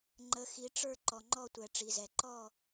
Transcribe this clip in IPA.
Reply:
ŋ͡ǃ ə˨ x i˨ ʈ͡ʂ ə˞˦˨ ǃ ɔ˨ ŋ͡ǃ ɔ˦˨ tʷ ɛ˨ ʈ͡ʂ i˨ z ɛ˨ ǃ ɔ˦˨

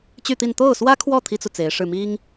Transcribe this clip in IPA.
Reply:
t͡ɕ y˥˧ t̪ i˥˧ n t̪ o˥˩ ʊ̯ s w ä˥ kʰ w ɔ˥˩ t̪ʰ i˥ t͡s u˨ t͡s e˧˥ ɪ̯ ʂ ɻ̩˥˩ m i˥ ŋ

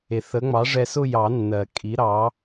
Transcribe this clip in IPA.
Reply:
e˩ θ ə˩˥ ŋ͡m ɑ˩˥ ʐ ɛ˧ s ʊ˥˧ j ɑ˨˩˦ nː ɜ˩ kʼ i˩˥ ɾ ɑ˩˥

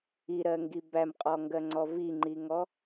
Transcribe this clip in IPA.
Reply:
i ɾ ɜ ŋ ɡ i b æ m qʼ ɔ ŋ ɡ ɜ ŋ͡ǀ ɔ v i ŋ͡ǃ i ŋ ɔ

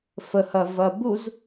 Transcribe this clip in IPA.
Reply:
f ə h ɐ v ɐ b u z

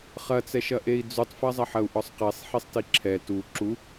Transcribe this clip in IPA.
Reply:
χ ɐ t͡s ɛ ʃ ɐ ʔ e i̯ d͡z u tˤ f ɐ zˤ ɐ ħ ɐ u̯ ʔ ɔ sˤ q e sˤ ħ i sˤ t i ǁʰ ɛ t u ǁ u

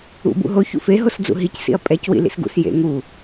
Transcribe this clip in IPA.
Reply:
ṵ b ṵ ɦ o ç ṵ f e ɦ o s d͡z ṵ ɦ i c s ḭ ɐ̯ pʼ ɛ c w ḭ l ḭ s ɡ ṵ s j ḛ ŋ u

